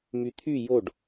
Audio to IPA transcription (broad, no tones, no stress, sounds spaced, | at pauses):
m y t̪ʰ y j o ɖ